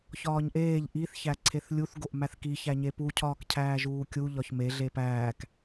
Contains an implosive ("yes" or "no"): no